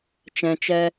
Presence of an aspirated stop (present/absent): absent